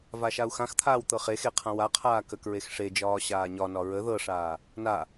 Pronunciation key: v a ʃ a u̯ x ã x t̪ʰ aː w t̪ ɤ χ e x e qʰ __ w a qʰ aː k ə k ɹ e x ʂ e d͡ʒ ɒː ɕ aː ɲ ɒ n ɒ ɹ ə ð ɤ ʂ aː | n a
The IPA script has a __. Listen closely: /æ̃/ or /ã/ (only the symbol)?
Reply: ã